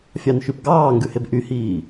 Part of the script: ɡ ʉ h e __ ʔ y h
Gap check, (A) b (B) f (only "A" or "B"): A